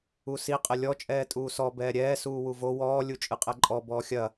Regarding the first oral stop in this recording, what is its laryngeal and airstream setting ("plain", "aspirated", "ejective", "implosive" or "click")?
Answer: ejective